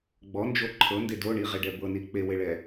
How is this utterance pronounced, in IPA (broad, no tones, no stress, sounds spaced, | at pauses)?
ɡ͡b ɔ n d͡ʒ o ǃʰ ɤ n d e d o ɳ i ʁ e ɖ ɛ b ɤ n i k͡p e w e ɭ ɛ